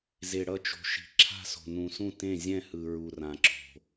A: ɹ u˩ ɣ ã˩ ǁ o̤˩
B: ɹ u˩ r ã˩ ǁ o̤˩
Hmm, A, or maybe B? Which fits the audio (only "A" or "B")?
B